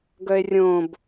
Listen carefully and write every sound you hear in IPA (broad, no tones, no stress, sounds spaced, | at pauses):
ɡ œ e̯ rʲ õ b